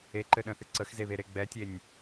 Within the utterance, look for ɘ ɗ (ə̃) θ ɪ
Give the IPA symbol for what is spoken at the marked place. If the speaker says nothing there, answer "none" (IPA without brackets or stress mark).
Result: ə̃